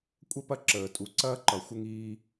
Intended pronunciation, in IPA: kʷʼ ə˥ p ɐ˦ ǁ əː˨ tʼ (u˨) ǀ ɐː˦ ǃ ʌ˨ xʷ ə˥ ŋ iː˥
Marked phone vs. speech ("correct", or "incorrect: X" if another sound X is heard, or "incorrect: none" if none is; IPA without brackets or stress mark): correct